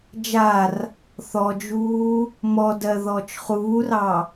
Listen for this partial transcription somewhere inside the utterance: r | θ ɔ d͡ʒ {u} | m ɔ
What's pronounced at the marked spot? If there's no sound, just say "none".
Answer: uː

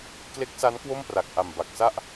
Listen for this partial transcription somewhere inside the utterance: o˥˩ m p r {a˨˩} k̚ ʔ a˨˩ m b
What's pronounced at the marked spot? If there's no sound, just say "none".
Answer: a˨˩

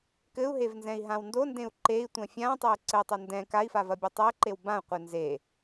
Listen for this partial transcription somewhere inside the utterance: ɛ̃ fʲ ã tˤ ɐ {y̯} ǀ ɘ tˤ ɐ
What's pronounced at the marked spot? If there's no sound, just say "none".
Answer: y̯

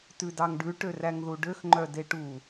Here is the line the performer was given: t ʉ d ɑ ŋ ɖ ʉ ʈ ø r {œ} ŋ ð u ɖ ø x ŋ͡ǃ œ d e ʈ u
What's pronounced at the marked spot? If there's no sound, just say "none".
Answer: æ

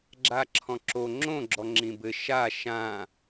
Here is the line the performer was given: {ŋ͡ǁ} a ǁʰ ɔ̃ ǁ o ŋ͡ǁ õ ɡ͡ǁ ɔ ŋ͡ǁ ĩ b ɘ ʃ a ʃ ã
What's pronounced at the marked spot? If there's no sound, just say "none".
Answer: ɡ͡ǁ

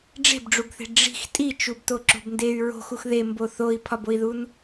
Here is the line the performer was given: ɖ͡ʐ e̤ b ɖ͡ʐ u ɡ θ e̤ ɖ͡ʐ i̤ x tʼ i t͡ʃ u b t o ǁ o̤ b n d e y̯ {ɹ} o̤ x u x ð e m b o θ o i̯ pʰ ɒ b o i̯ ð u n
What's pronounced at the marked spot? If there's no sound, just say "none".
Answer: ɹ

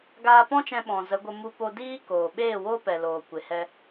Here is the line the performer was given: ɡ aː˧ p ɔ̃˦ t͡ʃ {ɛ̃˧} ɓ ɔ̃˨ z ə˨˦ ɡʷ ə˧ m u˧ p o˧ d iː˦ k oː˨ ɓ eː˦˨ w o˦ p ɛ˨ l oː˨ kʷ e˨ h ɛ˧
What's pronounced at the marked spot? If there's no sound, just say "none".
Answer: ɛ̃˧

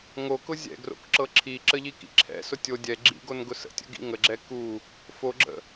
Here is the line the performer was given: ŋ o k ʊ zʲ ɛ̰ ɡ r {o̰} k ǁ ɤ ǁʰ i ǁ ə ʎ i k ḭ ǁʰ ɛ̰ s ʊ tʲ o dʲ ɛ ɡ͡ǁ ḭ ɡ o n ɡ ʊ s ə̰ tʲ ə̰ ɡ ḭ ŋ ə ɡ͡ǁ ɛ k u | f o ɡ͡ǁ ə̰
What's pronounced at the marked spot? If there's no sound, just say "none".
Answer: o̰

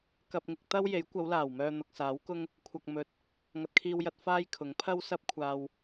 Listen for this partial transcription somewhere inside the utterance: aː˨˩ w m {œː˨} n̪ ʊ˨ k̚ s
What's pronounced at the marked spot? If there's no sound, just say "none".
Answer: œː˨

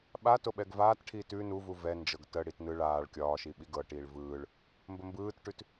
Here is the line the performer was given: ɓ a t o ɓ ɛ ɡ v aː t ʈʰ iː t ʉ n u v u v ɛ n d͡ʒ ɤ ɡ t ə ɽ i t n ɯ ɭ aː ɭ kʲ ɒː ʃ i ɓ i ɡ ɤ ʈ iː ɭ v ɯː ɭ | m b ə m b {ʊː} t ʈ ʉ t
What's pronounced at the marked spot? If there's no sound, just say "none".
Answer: ɯː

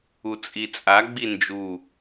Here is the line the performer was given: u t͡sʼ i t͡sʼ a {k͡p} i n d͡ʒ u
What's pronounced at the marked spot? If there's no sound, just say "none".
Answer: ɡ͡b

